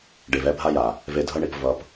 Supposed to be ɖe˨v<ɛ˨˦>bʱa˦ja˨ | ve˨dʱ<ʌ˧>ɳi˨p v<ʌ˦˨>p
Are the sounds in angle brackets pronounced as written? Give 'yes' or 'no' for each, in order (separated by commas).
no, yes, no